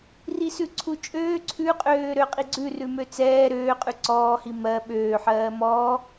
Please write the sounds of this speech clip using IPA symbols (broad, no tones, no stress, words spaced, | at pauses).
risʉǀʰut͡ʃʼøː ǀʰʉqʼøː ɾøqʼiɡ͡ǀʉrʉ møt͡sɛː ɾøːqʼʉ ǀɔːhi mɜ ɓøːħɜː mɔː